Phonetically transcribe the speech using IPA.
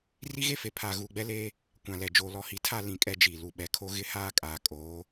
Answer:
r i˦ ɣ e˦ f e˨ pʰ aː˨ ɣ uː˨ ɡ͡b ɛ˦ l eː˦ | kʷ ã˨ l ɛ˨ d͡ʒ oː˨ l ɔ˨ h i˨ tʰ a˦˨ l ĩ˦˨ kʼ ɛ˦ d͡ʒ iː˨ l u˨ ɓ ɛ˨ kʰ o˦ ɣ ɪ˦ h aː˦ kʼ aː˨ kʼ oː˨˦

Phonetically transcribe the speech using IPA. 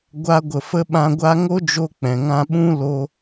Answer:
ɡʷ a˧ ɡʷ ə˨ f ə˧ ɓ ã˧ ɡʷ a˦ ŋ o˦ d͡ʒ o˧ k͡p ɛ̃˨ ŋ ã˧ ɓ ũ˦ l o˧

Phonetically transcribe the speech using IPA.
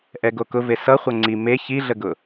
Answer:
ʔ ɛ ɡ o k ʊ v e s ʌ χʷ ʌ ŋ͡ǀ i m e ç i ɮ ə ɡ ʊ

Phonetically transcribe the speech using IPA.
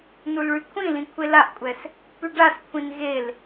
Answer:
n u l ɭ y kʷʰ ĩ l ĩ kʷʰ e l a ʔ kʷʼ ɛ s | p y ɖ a s kʷʰ ĩ n ɣ e l

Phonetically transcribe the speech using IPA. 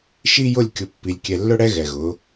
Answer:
ʃ i˦ j ʊ˦˨ lʲ kʲ ʊ˨ pː i˨ lʲ kʲ ɛ˨ lː ʊ˦ ɽ ɛ˦ ɣ ɛ˨ ɣ ʊ˨˦

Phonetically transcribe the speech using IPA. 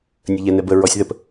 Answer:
nʲ ə ʎ ɛ n ɛ b ə ɹ ɔ sʲ ð ə p

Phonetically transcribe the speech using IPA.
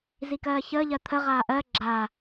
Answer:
z i k ɜː ç əː ʎ ɜ t̪ʰ ə ʁ aː ʔ ɜ ɡ͡ǁ a

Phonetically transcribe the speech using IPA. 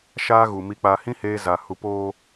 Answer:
ʃ aː˦ ɣ u˨ m i˨ k͡p a˨ h ĩ˦ h eː˦ z a˨ h u˨ p oː˦

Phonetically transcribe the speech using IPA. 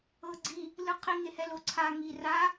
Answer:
ɤ ɡ͡ǀ i | l ɯ qʰ i ŋ e h ɛ l o ǀʰ a ŋ i r a

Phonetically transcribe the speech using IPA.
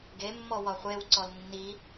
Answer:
ɡ e mː ɔ w ɒ χʷ e w ǀ ɔ l nː i

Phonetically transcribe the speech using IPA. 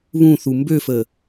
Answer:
β ũ θ u m b ø f ə

